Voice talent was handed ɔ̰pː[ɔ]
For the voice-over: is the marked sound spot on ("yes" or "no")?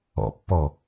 yes